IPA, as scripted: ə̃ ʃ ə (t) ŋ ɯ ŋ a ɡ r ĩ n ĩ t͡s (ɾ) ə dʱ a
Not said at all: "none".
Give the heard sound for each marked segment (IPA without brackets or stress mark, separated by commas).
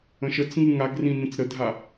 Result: t͡s, ɾ